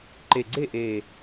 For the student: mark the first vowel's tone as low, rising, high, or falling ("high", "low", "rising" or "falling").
low